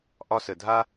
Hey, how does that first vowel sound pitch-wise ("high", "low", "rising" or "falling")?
high